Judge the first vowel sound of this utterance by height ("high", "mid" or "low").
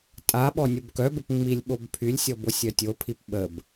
low